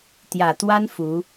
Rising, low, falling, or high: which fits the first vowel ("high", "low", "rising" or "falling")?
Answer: low